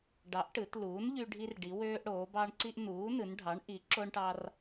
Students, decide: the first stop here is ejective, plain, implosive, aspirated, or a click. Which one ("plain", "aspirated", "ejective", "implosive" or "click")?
plain